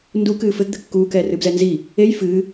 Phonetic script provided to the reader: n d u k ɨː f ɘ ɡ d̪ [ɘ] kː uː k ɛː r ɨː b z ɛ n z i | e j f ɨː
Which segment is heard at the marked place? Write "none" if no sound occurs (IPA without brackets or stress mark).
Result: ɘ